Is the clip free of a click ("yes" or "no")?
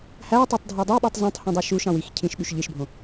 yes